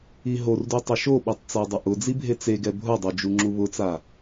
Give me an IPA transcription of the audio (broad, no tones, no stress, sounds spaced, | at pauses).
i ɦ o r d u tˤ ɪ ʃ o ɓ i tˤ t͡s a dˤ ʊ ʔ ʊ d͡z i bʱ e t͡s e ɡ ɛ bʱ ʊ dˤ o d͡ʒ u ŋ͡ǁ u β ʊ t͡s a